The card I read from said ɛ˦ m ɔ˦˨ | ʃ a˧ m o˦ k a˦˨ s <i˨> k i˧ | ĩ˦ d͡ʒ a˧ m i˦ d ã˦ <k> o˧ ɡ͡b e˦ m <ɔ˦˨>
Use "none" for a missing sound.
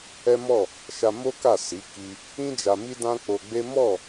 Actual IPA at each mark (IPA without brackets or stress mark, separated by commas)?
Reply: i˨˦, k͡p, ɔ˦˨